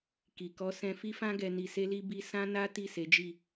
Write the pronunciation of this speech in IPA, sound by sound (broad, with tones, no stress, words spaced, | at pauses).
ki˨kɔ˧sɛ̃˧ fi˦fã˦ɡɛ˧ ni˧se˦li˦ bi˧ sã˦na˦ ti˦˨se˨˦d͡ʒi˦˨